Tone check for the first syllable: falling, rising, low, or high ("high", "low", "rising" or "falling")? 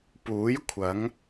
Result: rising